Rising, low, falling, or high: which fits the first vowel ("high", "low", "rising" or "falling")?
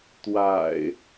low